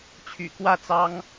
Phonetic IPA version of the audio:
t͡ɕʰy̰˨˩kwä˥˨t͡sɑ˦ŋ

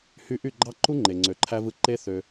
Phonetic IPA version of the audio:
hy˧ʔy˦˨ɡ͡ǃɑ˦ǃu˦ ŋ͡ǃe˨ŋ͡ǀø˨ǃʰæ˧vɯ˧ ǃe˦θø˧

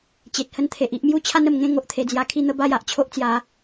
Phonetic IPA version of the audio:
t͡ɕe˨t̚hə˦nt̪ʰe˨ʔi˦ʔ mju˥˧t͡ɕʰa˦nə˨˩mŋẽ˥˧ ŋo˦ʔt̪ʰe˧d͡zja˧ kʰi˥˧n̪ə˦ba˦j a˦ʔt͡ɕʰo˦ʔt͡sja˨˦

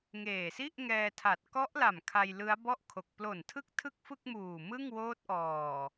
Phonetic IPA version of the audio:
ŋeː˨˩si˥˩ʔŋɛː˧tʰa˨˩t̚ kɔ˦˥ʔla˨˩m kʰa˧jlɯ˦˥a̯bɔ˥˩ʔkʰo˨˩k̚ plo˨˩ntʰɯ˦˥k̚ tʰɯ˥˩k̚fɯ˥˩k̚muː˨˩ mɯ˥˩ŋ woː˦˥t̚ʔɔː˨˩

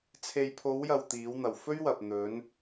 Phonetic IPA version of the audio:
t͡sʰe˨jpʰo˨˧wjɐ˨w t̪iː˨˧wn̪ɐ˨w fɵ˥ɥwɐ˨p̚n̪ɵ˨˧n

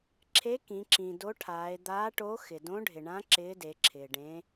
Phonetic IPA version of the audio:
ǁʰe˧˥ kĩ˩˧ǁĩ˩do˧˥ʈʰaː˩˧e̯ d̪aː˧˥ʈo˧˥ xɪ˩dõ˧˥ɖʱɪ˩ɳã˧˥ ǁɪː˧˥de˩˧ǁʰɪː˩ ɖẽ˩˧

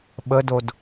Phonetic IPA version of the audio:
ɓədod

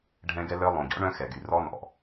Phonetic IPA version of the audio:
ɖʱɛ̃˦ɡɛ˦ lœ˦ lˠõ˨ɟɔ̰˦ ɳœ̃˦xɛ˨ɡy˨rɔ˦ nɔ̰˨

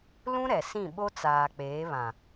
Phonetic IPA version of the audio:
lũ˦ ɾɛ˨sĩ˦˨ ɓo˦t͡saː˨k͡peː˨˦βã˨

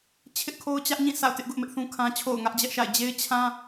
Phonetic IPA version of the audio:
t͡ɕʰɪ˦ʔkʰo˦ʊ̯t͡ɕä˦ʔɲĩ˦˨ sʰa̰˦˨ʊ̯tɪ˦ʔ ɡʊ˦ʔmɪ˦ʔθũ˦kʰã˦ t͡ɕʰo̰˦˨ʊ̯ŋä˦ʔd͡ʑɛ˦ʔʃa̰˦˨ɪ̯ d͡ʑe˦ɪ̯ t͡ɕʰã˦

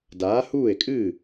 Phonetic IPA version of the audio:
daː˨˥ huː˥˩e̯kʼɨ˥˩

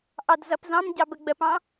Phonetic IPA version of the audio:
ʔɑdzʌpzɑ̃mɟɑ bəɡ͡bəpɑ̃

